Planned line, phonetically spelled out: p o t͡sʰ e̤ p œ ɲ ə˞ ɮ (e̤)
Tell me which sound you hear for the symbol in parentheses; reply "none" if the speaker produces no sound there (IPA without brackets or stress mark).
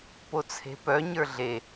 e